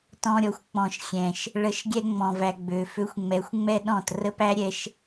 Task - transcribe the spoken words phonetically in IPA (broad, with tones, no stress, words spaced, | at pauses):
tɔ̃˧ ɾʲɔ˨xʷ k͡pɔ̃˨ʃ xʲɛ̃˨ʃ | ɭə˨˦ʃɡʲɛ˧ ŋ͡mɔ̃˨væ˨ ɡ͡bø˨ fø˧xʷŋ͡mɛ˨˦xʷŋ͡mɛ˦ɗɔ̃˦˨t rə˦pæ˦ɾʲɛ˧ʃ